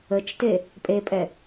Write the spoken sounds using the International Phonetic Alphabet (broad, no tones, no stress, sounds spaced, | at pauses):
ə t͡ʃ t e | pʼ e pʼ ɛ